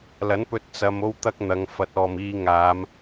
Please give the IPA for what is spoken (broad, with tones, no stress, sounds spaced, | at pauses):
l ɐ˨˥ n p ɵ˧ t̚ t͡s ɐ˧ m o˥ w t̪ ɐ˥ k̚ n̪ ɐ˨˧ ŋ f ɐ˨˥ t̚ ɔː˨ m iː˧ ŋ aː˨˧ m